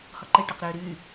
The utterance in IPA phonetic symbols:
h ɔ ǃ e ʈ ɔ q ɾ øː ɾ yː

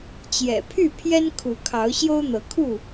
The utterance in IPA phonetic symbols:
t͡ɕ j ɛ̰˨˩ pʰ y˥˨ pʰ j ɛ˦ n kʰ u˨˦ kʰ ɑ˨˦ ʊ̯ ɕ j o˦ ʊ̯ n̪ ɤ˨˦ kʰ u˥˨

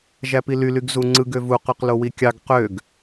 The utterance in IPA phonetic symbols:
ʒ æ p i l y l y ɡ z u ŋ͡ǀ ɯ ɡ ø v u q y q l o w i kʲ ɑ ɡ q ø ɡ

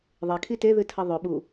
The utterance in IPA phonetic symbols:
ðˤ e kʰ i t e ð ɨ tʰ ɐ ðˤ ɵ ɓ u

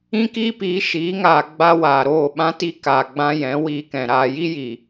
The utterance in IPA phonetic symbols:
ĩ˦ k iː˦ p iː˨˦ ʃ iː˨˦ ŋ aː˨ ɡ͡b a˦ w aː˨ ɾ oː˦˨ ɓ ã˦ t i˦ k aː˨ ɡ͡b ã˧ j ɛ̃˨˦ w iː˧ k ɛ̃˨ ɾ aː˧ j i˦ j i˨

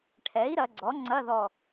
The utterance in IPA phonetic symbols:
ʈʰ ɛ˩˥ i̯ ɾ ɐ˩˧ ɡ͡ǀ ɔ˩˥ ŋ͡ǀ ɐ˧˥˧ ð ɔ˧˩

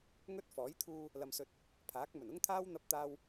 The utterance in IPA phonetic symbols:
ŋ ɵ˥ t̚ f ɔː˨˥ j t̪ʰ uː˧ | l ɐ˧ m s ɵ˧ t̚ | pʰ aː˨˥ k̚ m ɵ˨˩ n ʊ˥ ŋ t̪ʰ aː˥ w n̪ ɐ˧ p̚ t̪ aː˧ w

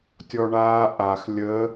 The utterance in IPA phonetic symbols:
tʲ ɔ ɳ aː ʔ a x lʲ ə

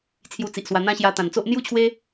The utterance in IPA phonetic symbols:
t͡sʰ j u˧ t͡s i˨ ʔ s w a˧ n̪ ã˦ ɕ j a˧ t̪ ã˨˩ n t͡s o˦ ʔ n̪ j u˥˧ t͡ɕʰ w e˦

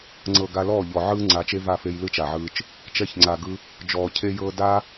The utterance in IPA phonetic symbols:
ŋ͡ǀ ɤ˨ ɡ a˧ l ɔː˦˨ ʎ ɔ˨ ʕ ɯː˦ ŋ͡ǀ a˨˦ t͡ʃ e˦ v a˦˨ f e˧ j l ɯ˦ t͡ʃ a˨ ʕ ɯː˧ t͡ʃ | t͡ʃ ɛ˧ ç ŋ͡ǀ a˨ ɡ ɯ˧ | d͡ʒ ɔː˨ cʰ e˧ j ɤː˧ d a˦

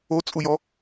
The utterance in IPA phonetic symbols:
o t͡sʼ u j ɔ

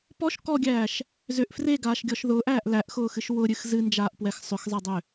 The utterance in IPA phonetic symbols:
p ɔ ʃ k ɔ ɡʲ æː ʃ | z ʏ ʔ f r e ɡ aː ʃ ɡʲ ɔ ʃ ð ʊː ʔ æː ʔ l æ ʔ x ʊː x ɨ ʃ w ʊ ɾʲ ɨ x z ɨ n d͡ʒ aː ʔ p w ɛ x sˤ ʏ x zˤ ɛ dˤ ʏ

